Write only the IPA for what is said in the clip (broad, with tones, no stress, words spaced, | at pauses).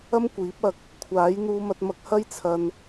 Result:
ɐ˥mkʷiː˨˥p̚ɐ˧k̚ | kʷʰaː˨˥jn̪uː˧mɐ˧t̚mɐ˧k̚ hɐ˥jt͡sʰɐ˧n